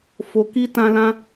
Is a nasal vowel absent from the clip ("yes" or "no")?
no